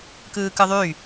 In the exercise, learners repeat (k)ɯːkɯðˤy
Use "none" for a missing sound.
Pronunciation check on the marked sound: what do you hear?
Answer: k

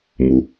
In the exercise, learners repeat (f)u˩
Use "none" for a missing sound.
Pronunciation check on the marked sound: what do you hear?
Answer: m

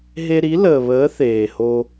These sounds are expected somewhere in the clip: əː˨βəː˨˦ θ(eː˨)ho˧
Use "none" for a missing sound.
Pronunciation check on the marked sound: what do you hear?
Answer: eː˨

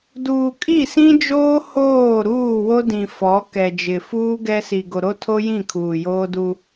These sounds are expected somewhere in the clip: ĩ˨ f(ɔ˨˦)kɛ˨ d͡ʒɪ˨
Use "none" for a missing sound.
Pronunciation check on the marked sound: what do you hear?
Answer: ɔ˨˦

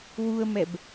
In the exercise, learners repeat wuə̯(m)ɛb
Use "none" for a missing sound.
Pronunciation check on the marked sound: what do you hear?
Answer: m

